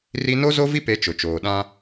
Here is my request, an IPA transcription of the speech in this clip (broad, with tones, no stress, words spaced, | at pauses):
ri˦ no˦zo˦vi˦pe˨˦ t͡ʃʊ˨t͡ʃoː˨ ɗã˦